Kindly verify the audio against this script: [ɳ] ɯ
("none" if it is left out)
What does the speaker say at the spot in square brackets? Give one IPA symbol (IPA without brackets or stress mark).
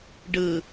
ɖ